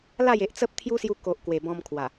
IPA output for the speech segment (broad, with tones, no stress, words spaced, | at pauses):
la˥˧je˨ʔ t͡sə˦p̚t̪ʰju˦sju˧ ko˨ʔ kwe˨˩bɔ̃˧mkʰwa˨˩